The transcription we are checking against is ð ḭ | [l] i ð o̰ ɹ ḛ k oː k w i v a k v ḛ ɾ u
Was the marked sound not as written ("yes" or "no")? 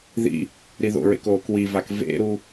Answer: yes